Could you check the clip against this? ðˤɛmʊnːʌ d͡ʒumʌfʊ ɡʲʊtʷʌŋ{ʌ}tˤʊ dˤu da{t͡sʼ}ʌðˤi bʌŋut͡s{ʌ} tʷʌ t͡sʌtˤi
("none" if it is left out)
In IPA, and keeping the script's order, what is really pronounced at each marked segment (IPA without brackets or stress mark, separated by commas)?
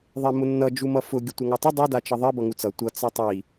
ʌ, t͡ʃ, ʌ